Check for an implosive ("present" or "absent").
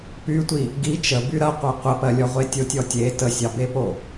absent